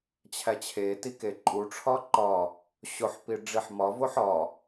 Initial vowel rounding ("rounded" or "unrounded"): unrounded